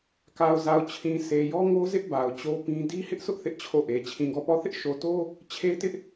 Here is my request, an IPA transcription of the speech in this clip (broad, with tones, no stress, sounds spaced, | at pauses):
k a˨ ʊ̯ z a˨ ʊ̯ t͡ɕʰ ĩ˨ sʰ e˨ j ɔ˦ ŋ o˦ z ɪ˦ ʔ b a˨ ʊ̯ t͡ɕ o˦ p ĩ˦ d i˦ h ɪ˦ ʔ sʰ ʊ˦ ʔ θ ɪ˦ ʔ t͡ɕʰ o˦˨ ʔ e˨ t͡ɕʰ ĩ˨ ɡ ɔ˦˨ p ɔ˦˨ θ ɪ˦ ʔ ʃ o˨ t o˦ | t͡ɕʰ e˦ t ɪ˦ ʔ